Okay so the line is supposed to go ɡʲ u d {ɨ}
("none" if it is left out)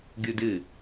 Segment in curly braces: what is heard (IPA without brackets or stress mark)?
ɨ